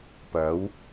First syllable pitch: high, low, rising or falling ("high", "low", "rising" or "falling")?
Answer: rising